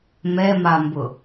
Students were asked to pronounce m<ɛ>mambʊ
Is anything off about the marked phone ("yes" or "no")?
no